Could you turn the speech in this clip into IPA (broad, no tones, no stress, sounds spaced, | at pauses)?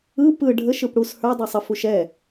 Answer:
ɯ p ɯ ɖʱ ə ʃ ɯ p ɽ u s h ə˞ dˤ ə˞ sˤ ə f u ʃ ɛ